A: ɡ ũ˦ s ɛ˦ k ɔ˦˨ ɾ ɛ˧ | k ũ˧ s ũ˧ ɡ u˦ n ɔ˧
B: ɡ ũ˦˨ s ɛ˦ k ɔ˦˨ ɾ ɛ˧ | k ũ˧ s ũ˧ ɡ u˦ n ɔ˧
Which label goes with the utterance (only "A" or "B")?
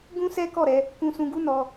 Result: A